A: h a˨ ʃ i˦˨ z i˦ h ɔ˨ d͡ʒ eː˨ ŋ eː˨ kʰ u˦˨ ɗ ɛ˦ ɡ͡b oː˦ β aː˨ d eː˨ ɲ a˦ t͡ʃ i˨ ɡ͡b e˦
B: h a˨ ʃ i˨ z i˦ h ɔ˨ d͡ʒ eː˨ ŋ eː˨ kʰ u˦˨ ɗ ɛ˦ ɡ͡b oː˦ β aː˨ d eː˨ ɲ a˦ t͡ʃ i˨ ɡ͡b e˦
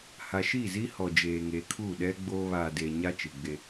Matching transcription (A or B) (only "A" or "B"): A